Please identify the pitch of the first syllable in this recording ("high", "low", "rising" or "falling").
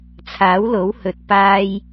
rising